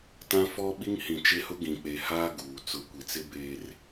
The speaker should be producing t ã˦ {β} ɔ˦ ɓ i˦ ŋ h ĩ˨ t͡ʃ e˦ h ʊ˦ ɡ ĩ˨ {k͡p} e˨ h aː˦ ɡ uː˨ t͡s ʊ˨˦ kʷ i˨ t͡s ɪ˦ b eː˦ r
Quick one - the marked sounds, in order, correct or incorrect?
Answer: incorrect, correct

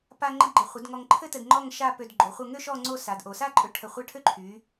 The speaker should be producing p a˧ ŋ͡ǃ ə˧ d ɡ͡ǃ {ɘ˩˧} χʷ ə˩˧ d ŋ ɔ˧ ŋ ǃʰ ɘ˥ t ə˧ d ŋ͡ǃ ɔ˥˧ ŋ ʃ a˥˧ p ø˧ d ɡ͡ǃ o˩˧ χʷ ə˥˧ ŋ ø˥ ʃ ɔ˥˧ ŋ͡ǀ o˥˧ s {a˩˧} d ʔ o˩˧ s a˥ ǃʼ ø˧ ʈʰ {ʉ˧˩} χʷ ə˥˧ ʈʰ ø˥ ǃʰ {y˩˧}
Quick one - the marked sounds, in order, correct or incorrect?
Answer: correct, correct, incorrect, correct

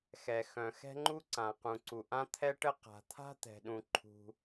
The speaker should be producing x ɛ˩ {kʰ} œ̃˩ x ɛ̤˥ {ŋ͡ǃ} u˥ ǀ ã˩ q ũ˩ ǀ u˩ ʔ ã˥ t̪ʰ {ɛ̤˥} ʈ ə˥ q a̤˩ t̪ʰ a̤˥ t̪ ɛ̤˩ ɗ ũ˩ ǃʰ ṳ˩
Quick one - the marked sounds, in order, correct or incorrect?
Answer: incorrect, correct, incorrect

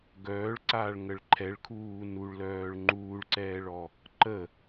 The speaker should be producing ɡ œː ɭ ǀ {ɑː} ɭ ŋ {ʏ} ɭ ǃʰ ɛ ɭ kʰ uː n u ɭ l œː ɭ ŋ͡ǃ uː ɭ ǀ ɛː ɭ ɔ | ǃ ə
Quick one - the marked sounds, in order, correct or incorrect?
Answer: incorrect, incorrect

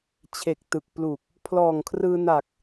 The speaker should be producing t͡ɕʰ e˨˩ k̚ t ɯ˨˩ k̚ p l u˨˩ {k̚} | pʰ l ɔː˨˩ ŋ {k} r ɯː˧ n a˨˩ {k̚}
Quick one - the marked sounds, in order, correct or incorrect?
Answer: correct, incorrect, correct

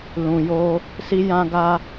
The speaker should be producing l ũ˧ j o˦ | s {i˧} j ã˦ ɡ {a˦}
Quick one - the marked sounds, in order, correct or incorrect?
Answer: incorrect, correct

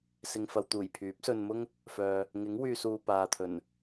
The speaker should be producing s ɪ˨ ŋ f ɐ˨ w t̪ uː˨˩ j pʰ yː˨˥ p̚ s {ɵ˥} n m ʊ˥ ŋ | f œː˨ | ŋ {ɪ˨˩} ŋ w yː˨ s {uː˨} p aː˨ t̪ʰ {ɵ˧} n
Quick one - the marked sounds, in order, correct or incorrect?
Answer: incorrect, incorrect, correct, incorrect

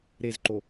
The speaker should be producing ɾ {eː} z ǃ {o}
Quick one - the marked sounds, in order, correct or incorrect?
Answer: incorrect, correct

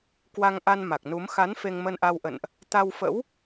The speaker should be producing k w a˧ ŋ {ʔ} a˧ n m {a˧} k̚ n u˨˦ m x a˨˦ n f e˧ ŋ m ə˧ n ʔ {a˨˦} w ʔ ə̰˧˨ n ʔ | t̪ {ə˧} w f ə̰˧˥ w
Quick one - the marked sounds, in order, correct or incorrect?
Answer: correct, incorrect, incorrect, incorrect

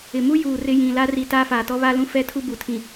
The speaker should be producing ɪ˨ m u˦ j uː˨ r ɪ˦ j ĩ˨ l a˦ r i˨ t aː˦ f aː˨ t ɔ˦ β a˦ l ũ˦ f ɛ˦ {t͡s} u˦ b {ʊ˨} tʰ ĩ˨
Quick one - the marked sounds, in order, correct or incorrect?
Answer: incorrect, incorrect

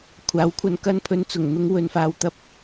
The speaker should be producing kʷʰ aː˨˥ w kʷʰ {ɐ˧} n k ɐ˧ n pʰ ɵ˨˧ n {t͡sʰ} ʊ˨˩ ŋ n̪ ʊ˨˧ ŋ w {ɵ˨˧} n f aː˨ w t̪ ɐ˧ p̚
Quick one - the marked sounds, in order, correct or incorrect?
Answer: correct, incorrect, correct

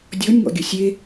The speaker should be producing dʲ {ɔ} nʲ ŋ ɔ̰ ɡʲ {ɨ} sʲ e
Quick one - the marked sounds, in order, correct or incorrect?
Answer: correct, incorrect

